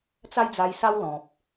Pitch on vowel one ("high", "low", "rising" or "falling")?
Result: high